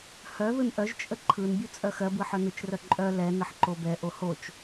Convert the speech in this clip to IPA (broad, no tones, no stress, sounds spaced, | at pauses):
h œ ð ɯ n ʔ œ ʒ t͡ʃʼ ə ǃʰ ɯ n bʲ u t͡sʼ œ x ɜ b ɯ ħ œ n ɯ t͡ʃ r œ ǃʼ œ l ɛ n ə ħ ǃ o b ɛ ʔ o h o t͡ʃ